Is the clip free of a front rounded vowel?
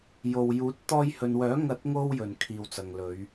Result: no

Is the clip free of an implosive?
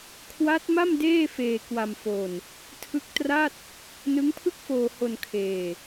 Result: yes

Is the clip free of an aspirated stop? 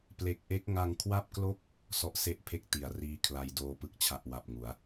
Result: no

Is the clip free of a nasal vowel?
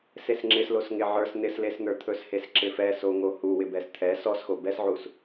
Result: yes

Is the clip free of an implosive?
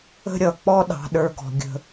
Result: no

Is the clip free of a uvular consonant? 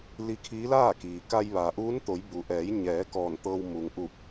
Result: yes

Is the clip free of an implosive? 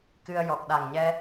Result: no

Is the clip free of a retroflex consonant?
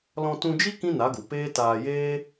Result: yes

